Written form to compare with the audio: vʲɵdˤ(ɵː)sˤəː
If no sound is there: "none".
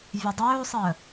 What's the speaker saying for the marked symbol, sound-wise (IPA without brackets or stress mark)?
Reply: ɵː